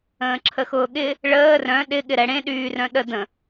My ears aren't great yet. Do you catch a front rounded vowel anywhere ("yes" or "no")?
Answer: yes